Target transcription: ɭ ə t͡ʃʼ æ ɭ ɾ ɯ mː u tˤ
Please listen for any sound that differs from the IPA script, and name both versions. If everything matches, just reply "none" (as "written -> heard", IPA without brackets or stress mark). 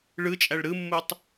ə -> ɯ